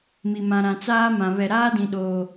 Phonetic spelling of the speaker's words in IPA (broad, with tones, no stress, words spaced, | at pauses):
mi˨mã˨ ɾã˨t͡saː˦mã˨ βɛ˨ɾaː˦dĩ˨ɗoː˨